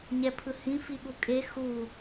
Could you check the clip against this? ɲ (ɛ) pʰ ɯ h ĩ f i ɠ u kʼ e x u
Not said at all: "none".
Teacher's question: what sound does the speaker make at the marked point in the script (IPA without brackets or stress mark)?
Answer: ɛ